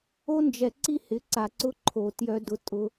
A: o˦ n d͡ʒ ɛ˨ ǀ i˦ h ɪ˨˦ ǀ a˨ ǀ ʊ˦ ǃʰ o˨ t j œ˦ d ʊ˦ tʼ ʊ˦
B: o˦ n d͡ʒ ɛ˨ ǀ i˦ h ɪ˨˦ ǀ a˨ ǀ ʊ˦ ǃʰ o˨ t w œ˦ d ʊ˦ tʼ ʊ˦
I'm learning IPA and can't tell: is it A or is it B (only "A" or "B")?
A